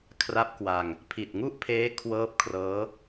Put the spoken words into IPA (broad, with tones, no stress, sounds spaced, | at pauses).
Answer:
kʰ r a˦˥ p̚ k w a˧ ŋ | pʰ i˨˩ t̚ ŋ u˥˩ ʔ pʰ eː˦˥ kʰ w ɤː˦˥ p̚ kʰ r ɤː˦˥